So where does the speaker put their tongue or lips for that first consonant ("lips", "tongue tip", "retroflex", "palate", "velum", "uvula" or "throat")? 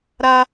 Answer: tongue tip